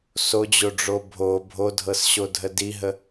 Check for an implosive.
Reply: absent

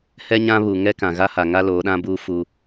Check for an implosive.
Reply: present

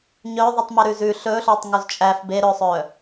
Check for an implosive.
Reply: absent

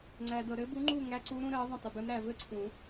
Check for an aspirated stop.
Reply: present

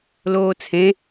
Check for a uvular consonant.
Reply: absent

